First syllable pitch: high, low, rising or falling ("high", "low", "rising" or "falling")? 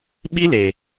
high